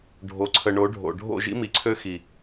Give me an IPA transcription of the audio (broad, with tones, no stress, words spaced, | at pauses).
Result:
ɖʱo˨ǀʰə˨ ɳo˨˦ɖʱo̰˨ ɖʱo̰˦˨ʒḭ˦mi˨ǀʰø˦ xi˨